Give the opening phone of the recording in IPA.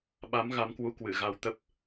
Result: ɓ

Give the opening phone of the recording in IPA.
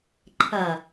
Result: ǃʰ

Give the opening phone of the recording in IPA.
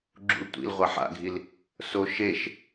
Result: ɡ͡ǁ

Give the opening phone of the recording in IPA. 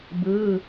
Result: b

